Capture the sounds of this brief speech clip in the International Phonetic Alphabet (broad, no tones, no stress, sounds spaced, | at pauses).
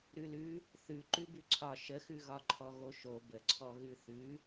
ɾ ʉ l ʉ | θ ʉ ǃ ʉ b ʉ ǀʰ ɒ ʃ ə x ʉ ɣ ɒ ǃʰ ɔ ɣ o ʃ o b ə ǀʰ ɔ ɣ ʉ θ ʉ